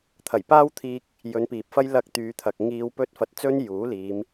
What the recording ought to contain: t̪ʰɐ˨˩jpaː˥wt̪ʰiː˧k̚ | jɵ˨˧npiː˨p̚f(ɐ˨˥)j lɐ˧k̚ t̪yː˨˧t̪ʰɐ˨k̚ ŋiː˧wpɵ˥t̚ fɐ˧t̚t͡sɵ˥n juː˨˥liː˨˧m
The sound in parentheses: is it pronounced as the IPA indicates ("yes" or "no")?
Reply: no